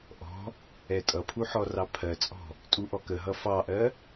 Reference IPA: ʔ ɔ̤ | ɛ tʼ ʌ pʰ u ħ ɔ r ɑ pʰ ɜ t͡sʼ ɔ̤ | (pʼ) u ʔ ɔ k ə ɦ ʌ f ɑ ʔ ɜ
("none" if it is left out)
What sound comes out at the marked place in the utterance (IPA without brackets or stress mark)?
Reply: tʼ